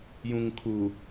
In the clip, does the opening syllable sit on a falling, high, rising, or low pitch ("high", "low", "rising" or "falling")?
low